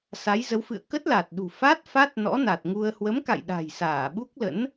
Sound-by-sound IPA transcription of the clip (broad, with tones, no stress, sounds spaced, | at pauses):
s a˨˦ j z ə˨˦ w f ɨ̰˧˨ ə̯ k ə˦˥ t̚ l a˨˩ t̚ ɗ ṳ˨˩ f a˦˥ t̚ f a˦˥ t̚ n ɔ̰˧˥ n a˨˩ t̚ ŋ u˧ ə̯ h w ə˨˦ m k a̰˧˨ j ɗ a̤˨˩ j s aː˧˩ ɓ u˦˥ k̚ l ə̰˧˥ n